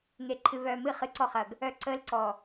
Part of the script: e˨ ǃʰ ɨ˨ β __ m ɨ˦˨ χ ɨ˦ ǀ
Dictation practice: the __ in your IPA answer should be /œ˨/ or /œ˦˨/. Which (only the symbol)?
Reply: œ˨